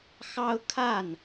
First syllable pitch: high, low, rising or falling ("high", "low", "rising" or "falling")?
high